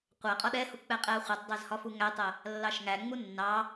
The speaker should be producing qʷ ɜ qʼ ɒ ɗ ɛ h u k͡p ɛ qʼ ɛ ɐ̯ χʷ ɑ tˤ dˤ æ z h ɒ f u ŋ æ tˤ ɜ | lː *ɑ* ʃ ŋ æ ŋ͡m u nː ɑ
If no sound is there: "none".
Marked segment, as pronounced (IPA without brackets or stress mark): ɑ